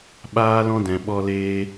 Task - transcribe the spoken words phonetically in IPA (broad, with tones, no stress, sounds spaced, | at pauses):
ɓ aː˦ l ɔ̃˦ d ɛ̃˨ ɓ ɔ˧ l eː˧